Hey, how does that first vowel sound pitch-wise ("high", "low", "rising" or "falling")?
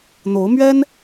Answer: rising